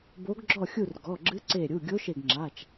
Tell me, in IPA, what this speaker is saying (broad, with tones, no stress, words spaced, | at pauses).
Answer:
bo˧˥ɡɡ͡ǁɔ˥˨xʲu˥˨r ɡɔ˩˧˩ɡ͡ǁɨ˧˥ǀe˧˩ɾʲu˩˧˩ ɡʲo˧˥ʃe˧˩ɡŋ͡ǁa˩˧˩t͡ʃ